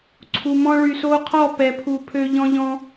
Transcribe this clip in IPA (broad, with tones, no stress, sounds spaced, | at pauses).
ǀʰ u˨ m ɔ̃˧ ɭ y˨ s o˧ qʰ ɔ˦˨ p ɛ˨ pʰ u˨ pʰ ø˧ ʎ ɔ̃˦ ʎ ɔ̃˦